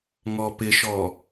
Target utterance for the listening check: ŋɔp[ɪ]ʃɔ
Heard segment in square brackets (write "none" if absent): ɪ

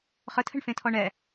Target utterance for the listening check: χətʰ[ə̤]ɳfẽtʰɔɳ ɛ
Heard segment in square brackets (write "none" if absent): ə̤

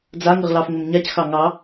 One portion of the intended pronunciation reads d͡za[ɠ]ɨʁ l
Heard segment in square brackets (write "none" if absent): ŋ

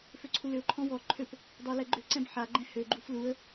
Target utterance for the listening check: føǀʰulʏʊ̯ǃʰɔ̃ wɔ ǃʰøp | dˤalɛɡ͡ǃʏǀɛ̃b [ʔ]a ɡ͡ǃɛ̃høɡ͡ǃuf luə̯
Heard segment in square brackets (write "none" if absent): ħ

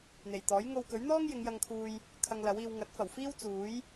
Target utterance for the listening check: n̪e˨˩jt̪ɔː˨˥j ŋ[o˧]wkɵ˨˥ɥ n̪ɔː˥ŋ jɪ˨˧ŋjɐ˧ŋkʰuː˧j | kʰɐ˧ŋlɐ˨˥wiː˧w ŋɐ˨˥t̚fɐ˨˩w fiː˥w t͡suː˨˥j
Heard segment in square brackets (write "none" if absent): o˧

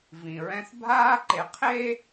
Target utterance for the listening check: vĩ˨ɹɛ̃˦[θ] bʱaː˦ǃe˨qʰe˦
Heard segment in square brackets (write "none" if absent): θ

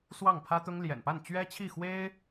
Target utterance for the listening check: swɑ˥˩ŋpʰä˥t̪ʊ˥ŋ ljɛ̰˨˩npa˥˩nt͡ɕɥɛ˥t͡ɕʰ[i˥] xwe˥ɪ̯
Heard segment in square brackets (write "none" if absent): i˥˩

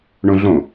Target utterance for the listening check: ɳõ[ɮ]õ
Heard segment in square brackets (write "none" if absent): ɮ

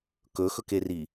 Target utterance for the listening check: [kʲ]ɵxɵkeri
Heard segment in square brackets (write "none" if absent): k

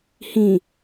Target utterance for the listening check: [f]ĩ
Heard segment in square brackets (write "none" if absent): h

